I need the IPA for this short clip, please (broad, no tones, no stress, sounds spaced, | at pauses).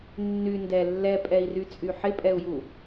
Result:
nː y n d ɛ lː ɛ pʼ ɛ i̯ r y t͡sʼ y ħ ɪ pʼ ɛ u̯ j u